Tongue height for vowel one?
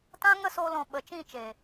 low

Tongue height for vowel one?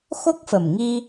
mid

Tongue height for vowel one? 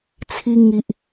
high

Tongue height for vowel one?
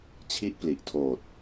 high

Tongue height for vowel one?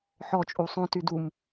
mid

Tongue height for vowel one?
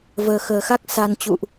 mid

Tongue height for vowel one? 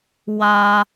low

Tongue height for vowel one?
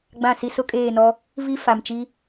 low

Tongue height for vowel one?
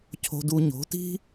mid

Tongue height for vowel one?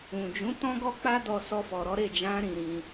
high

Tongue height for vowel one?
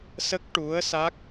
mid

